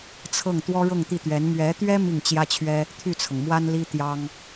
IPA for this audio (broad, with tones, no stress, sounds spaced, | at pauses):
t͡sʰ ɤ˥˩ ŋ t̪ w ɔ˥ ɻ ɤ˥˧ ŋ t̪ i˥˩ t̪ ɥ ɛ˧˥ n m ɥ ɛ˧˥ t̪ ɥ ɛ˥ m i˥˩ ŋ t͡ɕ j ä˥ t͡ɕʰ ɥ ɛ˥ | t̪ʰ y˥˩ t͡sʰ ɤ˩ ŋ m w a˥ n l i˥ t̪ j ɑ˥ ŋ